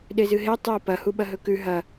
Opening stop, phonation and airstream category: implosive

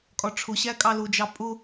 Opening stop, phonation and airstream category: ejective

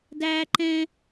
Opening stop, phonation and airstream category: plain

